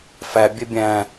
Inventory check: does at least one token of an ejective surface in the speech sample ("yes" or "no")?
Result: no